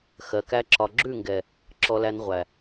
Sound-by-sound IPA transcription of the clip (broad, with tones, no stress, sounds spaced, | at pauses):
x ɜ˨ k æ˧ ǁ ɒ˨ ɡ͡ǁ ʉ˦˨ ŋ ɡ ɛ˨ | ǁ ɔ˧ l æ˧ n ʁʷ æ˨